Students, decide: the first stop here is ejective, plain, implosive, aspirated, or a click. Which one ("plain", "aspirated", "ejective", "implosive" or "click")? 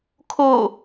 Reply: aspirated